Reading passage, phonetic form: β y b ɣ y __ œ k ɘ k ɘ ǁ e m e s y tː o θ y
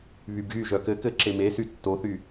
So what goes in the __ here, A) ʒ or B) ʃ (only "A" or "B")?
A